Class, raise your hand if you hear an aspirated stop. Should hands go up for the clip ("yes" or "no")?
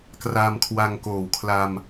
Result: yes